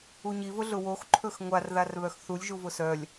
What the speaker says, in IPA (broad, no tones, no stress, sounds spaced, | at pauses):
u ɲ i v ʊ ɮ ʊ w o x ǃʰ ɵ x ŋʷ a r ð a r β œ x θ u lʲ ʒ u v ʊ s œ lʲ